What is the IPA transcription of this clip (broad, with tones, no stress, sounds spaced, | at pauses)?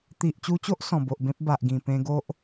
t̪ i˨ ʔ t͡ɕ u˧ t͡ɕ o˦ ʔ s ɔ̃˨˩ b o˨ ʔ b ẽ˦ p̚ b a˨ ʔ ɡ ĩ˨˩ p ẽ˧ ɡ o˦ ʔ